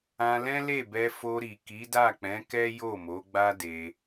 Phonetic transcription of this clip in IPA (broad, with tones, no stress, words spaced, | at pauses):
ã˧lɛ̃˦le˦˨bɛ˧ fo˧ɾi˨ ki˨˦da˦˨k͡pɛ̃˨˦kɛ˦ jo˦˨mo˨˦ɡ͡ba˦de˧